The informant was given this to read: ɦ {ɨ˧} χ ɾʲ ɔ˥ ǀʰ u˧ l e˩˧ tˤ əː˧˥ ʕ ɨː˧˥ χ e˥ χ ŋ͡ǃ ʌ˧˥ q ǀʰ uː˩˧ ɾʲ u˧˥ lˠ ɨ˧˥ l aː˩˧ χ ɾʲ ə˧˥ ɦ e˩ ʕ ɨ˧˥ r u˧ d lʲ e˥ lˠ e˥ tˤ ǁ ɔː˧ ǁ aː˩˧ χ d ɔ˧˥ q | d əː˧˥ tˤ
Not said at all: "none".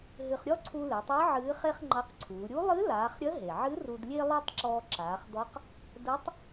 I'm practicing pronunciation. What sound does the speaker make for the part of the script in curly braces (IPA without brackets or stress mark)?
ɨ˧